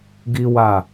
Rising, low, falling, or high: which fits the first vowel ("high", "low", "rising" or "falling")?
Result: high